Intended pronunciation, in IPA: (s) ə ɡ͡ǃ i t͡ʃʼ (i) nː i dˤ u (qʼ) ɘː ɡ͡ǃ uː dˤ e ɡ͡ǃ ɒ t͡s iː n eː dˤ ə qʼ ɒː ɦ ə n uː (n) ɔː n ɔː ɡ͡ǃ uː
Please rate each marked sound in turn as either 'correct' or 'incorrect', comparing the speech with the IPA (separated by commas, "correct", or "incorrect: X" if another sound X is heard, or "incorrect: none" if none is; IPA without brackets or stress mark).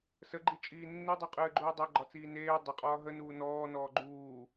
correct, incorrect: iː, correct, correct